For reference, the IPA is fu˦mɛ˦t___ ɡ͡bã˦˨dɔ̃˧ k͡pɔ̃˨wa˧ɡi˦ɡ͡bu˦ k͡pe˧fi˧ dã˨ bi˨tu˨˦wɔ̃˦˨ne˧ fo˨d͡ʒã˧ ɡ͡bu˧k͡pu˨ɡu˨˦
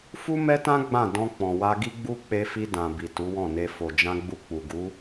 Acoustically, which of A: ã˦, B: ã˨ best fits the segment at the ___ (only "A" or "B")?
A